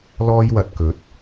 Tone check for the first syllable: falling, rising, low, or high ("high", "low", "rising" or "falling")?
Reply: high